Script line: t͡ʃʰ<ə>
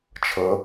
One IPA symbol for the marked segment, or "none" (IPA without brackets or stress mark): ə